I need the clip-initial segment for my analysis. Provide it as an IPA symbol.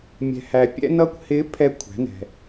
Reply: mʲ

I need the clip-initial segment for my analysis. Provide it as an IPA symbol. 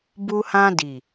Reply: b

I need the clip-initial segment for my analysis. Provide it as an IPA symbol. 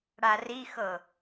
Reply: ɽ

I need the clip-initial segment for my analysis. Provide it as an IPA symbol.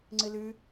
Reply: ŋ͡ǀ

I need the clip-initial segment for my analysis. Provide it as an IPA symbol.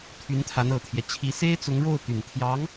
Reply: t̪ʰ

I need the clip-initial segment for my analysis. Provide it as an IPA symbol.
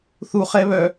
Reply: θ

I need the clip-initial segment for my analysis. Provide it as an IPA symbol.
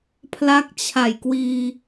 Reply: pʰ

